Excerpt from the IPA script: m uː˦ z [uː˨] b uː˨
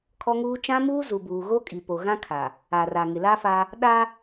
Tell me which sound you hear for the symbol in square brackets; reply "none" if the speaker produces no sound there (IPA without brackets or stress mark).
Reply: u˨